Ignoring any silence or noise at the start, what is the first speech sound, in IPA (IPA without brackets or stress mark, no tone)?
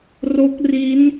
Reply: r